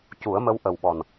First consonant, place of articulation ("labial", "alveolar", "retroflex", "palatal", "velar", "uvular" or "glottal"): palatal